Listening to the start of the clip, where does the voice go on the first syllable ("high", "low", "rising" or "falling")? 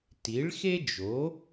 rising